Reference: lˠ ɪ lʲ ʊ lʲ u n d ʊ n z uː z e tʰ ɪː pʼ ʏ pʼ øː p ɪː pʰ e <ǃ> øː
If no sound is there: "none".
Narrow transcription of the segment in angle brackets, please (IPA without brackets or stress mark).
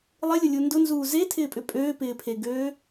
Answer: ɡ